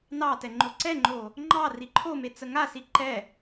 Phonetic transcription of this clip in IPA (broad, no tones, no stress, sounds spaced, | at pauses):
n ɑ t ɛ ŋ͡ǃ o ǀ ɛ ŋ͡ǃ o | ŋ͡ǃ ɑ r i ǃʰ o m e t͡s ə ŋ a s i ǃ ɛ